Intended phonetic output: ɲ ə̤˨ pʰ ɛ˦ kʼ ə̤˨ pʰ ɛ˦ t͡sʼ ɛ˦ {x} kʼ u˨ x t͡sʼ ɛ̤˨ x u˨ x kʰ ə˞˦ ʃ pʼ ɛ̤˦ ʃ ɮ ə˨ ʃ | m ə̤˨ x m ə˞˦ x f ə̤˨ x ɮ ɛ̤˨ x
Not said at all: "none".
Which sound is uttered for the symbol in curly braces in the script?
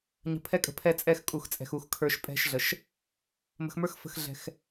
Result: x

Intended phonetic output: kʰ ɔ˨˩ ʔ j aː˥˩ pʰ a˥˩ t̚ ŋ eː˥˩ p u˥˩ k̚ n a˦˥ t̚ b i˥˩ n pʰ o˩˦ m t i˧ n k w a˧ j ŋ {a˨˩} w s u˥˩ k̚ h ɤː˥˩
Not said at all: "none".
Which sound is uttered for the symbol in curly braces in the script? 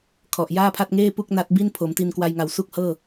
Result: a˨˩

